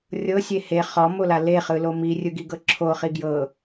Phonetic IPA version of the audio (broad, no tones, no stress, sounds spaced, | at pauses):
rʲ ɤ sʲ e h e χ ɔ m o l a l e χ ɯ l o m i rʲ ɯ ɡ i ɡ ɤ ǁʰ o χ i ɡ j ɤ